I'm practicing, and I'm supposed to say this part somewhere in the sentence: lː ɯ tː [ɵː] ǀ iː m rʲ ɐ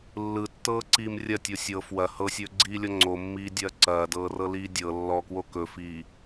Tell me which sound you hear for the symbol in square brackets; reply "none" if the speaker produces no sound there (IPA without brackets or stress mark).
ɤː